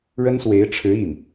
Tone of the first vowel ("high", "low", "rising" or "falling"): high